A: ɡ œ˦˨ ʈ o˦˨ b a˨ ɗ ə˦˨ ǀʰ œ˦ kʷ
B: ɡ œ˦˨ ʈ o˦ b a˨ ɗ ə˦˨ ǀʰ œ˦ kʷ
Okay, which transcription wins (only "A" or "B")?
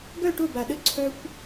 A